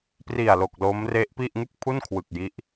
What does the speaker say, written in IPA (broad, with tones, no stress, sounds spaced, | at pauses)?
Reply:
p r i˨˩ a̯ l o˨˩ k̚ l o˦˥ m r e˦˥ ʔ p i˥˩ ʔ ŋ ɯ˥˩ k̚ pʰ u˥˩ n kʰ w ɯ˨˩ k̚ j i˦˥ ʔ